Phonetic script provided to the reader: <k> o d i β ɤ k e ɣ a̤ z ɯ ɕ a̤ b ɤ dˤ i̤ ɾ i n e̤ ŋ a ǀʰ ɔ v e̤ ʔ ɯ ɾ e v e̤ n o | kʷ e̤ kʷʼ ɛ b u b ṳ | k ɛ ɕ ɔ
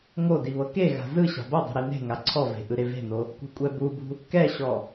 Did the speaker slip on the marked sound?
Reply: yes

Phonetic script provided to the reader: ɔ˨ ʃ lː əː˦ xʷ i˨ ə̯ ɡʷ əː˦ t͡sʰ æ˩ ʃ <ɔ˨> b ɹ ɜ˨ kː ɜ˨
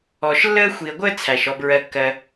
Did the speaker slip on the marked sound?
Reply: no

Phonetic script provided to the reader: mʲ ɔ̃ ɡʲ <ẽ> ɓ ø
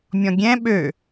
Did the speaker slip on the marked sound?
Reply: yes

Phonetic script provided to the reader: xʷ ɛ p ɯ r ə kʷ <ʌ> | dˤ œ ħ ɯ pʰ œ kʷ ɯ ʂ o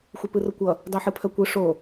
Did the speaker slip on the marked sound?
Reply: no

